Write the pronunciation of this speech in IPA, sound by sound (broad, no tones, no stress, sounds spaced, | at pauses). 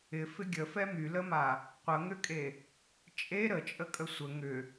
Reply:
ɪ f ɪ ɡʲ ə f ɛ m y l ə m a | qʷ ə ŋ ʏ kʼ e | t͡ʃʼ e ɾ ə t͡ʃʼ ə kʼ ə sʷ ə ŋ ʏ